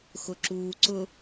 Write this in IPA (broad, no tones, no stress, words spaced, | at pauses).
xʊǁuːǀʊ